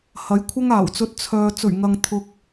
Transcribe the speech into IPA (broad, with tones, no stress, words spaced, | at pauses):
hɐ˨˥jkʷʰɐ˥ŋaː˨˩wt͡sɵ˧t̚ t͡sʰœː˧ t͡sɵ˨˩ɥŋɐ˨ŋ t̪ʰʊ˧k̚